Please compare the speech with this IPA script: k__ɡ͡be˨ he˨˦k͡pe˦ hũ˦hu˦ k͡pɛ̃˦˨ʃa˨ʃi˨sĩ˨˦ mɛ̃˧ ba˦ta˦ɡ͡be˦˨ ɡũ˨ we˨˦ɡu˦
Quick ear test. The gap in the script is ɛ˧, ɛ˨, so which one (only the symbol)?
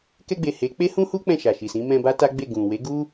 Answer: ɛ˧